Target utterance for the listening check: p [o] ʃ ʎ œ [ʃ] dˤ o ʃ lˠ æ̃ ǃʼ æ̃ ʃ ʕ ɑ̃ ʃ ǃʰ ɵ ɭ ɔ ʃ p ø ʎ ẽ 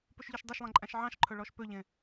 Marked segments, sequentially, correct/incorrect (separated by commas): incorrect, correct